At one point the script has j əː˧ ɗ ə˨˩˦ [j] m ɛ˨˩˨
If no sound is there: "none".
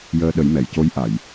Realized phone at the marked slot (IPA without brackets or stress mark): j